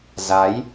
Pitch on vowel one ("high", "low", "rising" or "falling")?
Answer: rising